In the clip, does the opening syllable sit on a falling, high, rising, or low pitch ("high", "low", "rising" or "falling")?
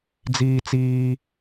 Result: high